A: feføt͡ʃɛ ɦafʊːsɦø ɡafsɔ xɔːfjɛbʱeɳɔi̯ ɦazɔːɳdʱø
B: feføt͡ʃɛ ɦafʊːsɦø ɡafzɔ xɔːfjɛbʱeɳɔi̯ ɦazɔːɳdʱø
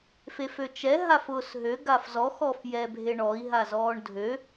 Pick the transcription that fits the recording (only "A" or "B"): B